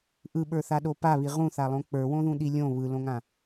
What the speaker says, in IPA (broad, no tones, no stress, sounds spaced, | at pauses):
ʔ ɯ ɓ ə˞ θ a ɗ o p a β i ʁ ũ θ a lˠ õ k͡p ə˞ w õ ð ũ ɗ i lʲ õ β ɯ l õ ŋ ã